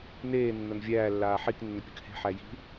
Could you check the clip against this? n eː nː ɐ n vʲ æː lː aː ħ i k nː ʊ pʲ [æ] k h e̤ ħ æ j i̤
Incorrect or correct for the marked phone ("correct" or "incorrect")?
incorrect